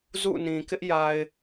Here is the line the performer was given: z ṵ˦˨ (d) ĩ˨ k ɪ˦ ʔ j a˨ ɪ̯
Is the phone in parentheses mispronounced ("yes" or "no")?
yes